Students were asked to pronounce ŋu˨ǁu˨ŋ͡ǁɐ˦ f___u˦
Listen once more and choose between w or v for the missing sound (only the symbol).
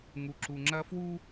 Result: w